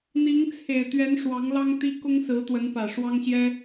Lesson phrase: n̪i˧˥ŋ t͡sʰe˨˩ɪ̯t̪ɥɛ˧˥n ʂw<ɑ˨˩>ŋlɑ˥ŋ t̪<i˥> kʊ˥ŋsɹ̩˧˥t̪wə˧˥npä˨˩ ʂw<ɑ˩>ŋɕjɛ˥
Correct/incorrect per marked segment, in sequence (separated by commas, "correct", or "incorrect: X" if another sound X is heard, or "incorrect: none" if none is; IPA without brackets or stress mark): incorrect: ɑ˧˥, correct, incorrect: ɑ˥